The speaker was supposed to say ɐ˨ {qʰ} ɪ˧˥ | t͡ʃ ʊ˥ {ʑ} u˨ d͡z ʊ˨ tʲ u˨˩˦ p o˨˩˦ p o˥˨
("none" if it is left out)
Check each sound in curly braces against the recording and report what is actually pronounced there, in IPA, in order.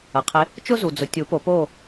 qʰ, z

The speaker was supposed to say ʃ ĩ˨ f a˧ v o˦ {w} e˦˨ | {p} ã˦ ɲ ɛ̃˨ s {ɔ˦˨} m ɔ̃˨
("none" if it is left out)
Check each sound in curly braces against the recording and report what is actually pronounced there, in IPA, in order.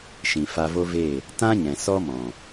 v, t, ɔ˦

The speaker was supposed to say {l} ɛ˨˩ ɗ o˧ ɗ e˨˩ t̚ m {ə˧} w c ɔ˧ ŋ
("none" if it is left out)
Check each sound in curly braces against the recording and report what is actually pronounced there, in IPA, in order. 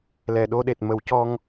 l, ə˨˩˦

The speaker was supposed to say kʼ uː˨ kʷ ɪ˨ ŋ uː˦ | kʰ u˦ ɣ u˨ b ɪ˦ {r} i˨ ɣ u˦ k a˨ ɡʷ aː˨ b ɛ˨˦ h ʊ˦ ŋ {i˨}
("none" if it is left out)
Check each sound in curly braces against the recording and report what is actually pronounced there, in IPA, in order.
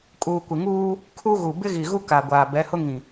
ɣ, ĩ˨

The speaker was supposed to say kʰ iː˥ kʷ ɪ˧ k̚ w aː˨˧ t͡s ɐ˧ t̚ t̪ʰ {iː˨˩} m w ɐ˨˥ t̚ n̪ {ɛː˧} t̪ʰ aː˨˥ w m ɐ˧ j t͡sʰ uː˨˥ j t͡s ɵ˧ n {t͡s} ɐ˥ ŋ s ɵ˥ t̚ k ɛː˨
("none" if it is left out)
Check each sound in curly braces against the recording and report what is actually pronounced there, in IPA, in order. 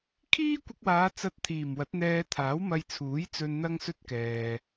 iː˨˩, ɛː˧, n̪

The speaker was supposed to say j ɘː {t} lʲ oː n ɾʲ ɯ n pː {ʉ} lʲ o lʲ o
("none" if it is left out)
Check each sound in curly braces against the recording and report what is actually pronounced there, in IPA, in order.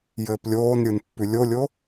p, ʉ

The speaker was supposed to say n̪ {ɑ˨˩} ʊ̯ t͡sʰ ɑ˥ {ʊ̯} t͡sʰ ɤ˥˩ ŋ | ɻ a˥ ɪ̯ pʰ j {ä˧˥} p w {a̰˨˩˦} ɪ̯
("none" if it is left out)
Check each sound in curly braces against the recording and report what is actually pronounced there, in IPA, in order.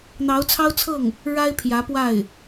ɑ˧˥, ʊ̯, ä˧˥, a˥˩

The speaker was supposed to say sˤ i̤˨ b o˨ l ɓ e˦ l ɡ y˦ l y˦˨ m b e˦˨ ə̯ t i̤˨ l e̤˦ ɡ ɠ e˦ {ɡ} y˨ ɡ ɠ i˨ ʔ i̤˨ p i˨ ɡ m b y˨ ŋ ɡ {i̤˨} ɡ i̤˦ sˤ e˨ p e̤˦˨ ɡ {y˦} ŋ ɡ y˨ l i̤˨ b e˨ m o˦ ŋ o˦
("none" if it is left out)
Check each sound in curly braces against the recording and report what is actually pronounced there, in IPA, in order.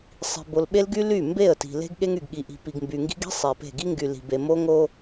ŋ, i̤˦, i˦

